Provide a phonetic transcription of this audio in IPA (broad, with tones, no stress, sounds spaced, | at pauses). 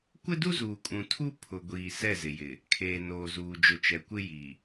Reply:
kʷ ɪ˦ d u˦ z uː˨ kʼ ũ˨ tʰ u˦ pʰ ʊ˨ ɡʷ iː˨ s ɛ˦˨ z ɪ˨ j ɪ˨ | kʰ eː˨ n oː˨ z uː˨ d͡ʒ ʊ˨ t͡ʃ ɛ˨ kʷ ɪ˦ j i˨